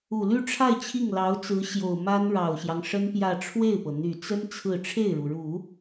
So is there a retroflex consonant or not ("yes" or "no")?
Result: yes